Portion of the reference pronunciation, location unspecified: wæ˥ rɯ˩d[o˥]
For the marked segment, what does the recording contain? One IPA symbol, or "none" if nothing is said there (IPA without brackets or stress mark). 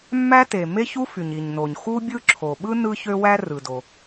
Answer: o˩